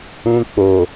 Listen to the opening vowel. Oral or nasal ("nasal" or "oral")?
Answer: nasal